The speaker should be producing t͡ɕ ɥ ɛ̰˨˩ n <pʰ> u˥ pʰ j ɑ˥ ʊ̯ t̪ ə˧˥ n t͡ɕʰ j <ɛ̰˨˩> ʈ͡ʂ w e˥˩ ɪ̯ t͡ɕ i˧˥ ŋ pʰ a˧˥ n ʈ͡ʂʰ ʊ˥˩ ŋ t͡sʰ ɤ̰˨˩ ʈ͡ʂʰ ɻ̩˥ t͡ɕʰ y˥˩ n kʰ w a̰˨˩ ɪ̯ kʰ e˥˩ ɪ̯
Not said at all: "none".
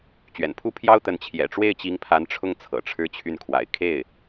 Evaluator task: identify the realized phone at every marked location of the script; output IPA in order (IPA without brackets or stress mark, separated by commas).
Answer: pʰ, ɛ̰˨˩